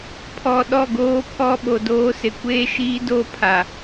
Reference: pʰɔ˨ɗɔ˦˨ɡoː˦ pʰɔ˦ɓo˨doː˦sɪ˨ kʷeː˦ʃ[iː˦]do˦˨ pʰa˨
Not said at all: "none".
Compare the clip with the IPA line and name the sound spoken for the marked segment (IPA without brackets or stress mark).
iː˦